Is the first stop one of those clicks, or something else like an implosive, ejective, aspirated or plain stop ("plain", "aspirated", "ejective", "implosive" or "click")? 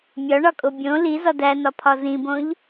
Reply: ejective